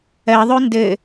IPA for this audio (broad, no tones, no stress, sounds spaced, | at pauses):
ɜ ðˤ ʉ n d ɘ